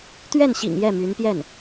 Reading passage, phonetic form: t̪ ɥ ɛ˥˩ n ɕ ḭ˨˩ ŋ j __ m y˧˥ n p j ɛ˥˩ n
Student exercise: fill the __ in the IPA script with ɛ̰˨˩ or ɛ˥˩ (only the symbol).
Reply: ɛ˥˩